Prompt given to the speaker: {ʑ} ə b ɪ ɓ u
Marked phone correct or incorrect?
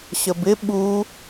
incorrect